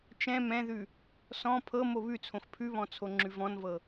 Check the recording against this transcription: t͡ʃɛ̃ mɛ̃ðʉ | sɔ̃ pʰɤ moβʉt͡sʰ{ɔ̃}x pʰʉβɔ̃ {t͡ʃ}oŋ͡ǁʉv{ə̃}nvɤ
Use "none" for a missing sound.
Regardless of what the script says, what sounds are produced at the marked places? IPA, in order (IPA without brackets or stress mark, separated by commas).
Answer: õ, t͡sʰ, ɔ̃